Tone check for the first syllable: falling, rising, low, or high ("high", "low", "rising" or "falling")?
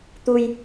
low